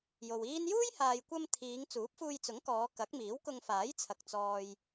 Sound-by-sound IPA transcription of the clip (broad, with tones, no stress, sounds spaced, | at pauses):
j o˨ w iː˥ n j uː˥ j h aː˨ j kʷ ɐ˧ m t̪ʰ iː˨˧ ŋ t͡s uː˨˥ p̚ f uː˧ j t͡s ʊ˨˥ ŋ k ɔː˨˧ k ɐ˨˥ k̚ m iː˨˥ w k ʊ˧ ŋ f aː˨˥ j t͡sʰ ɐ˨ k̚ t͡s ɔː˨ j